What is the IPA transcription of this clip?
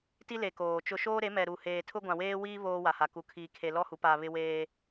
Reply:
t i˦ l e˨ k oː˨ t͡ʃ ʊ˦ ʃ oː˦ ɾ e˨˦ m ɛ˨ ɾ u˨ h eː˨ tʰ ʊ˦ ɡʷ ã˨ w eː˦ w iː˦ β oː˦ w a˨ h a˨ k u˨ kʰ iː˨ kʰ e˨ l ɔ˦ h u˨˦ p a˨ β ɪ˦ w eː˦

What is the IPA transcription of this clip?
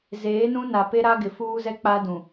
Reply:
z eː˨˦ n ũ˦ n a˨ p e˦ ɾ a˦ ɡ ɪ˨ f uː˦ z ɛ˦ k͡p a˦ d ũ˨

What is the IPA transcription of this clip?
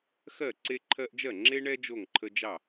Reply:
x ɜ˥˩ ǀ e˦ ǃʰ ɜ˦ ʔ d͡ʒ ɜ˥˩ ŋ͡ǁ e˦ ɳ ɛ˦ d͡ʒ o˥˩ ŋ ǃʰ ə˦ d͡ʒ ɑ˥˩

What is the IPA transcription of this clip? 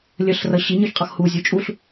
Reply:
lʲ ə ɬ r ʌ ɕ i ɲ ə˞ ç qʼ ʌ x h u zʲ u t͡ʃʼ u ɬ

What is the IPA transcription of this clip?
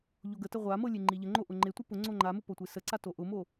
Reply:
ʎ o ɡ ə t ə ʁʷ a m ɤ lʲ e ŋ͡ǃ i ʎ ə ŋ͡ǃ o ʔ ʊ ŋ͡ǃ e tʷ i p ʊ ŋ͡ǀ o ŋ͡ǃ a m ʊ p o tʷ e s ə ǀ a t o ʔ ʊ m o

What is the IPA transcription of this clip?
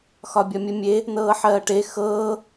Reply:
x ɒ bʲ ɒ mʲ ə mʲ e | n ɤː ħ ɜː ʈ e x ɤː

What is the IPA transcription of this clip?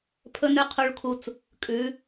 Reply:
pʰ ɵ˥ n ʉ˥ qʰ u˧ ɭ kʰ u˧ t͡s | kʼ ʉ˩˧

